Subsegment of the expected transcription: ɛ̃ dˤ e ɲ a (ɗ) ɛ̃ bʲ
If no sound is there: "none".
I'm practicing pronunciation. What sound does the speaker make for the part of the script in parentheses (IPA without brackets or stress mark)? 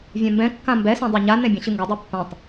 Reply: n